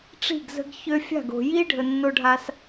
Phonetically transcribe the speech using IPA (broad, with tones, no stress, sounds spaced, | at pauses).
ʈ͡ʂ i̤˦˨ ɡ z ə̤˧ ɡ ç ø˧ fʲ a̤˦˨ ɡ o̤˨ j i˦ ɖʱ ə˨ nː o˧ ɖʱ a˧ s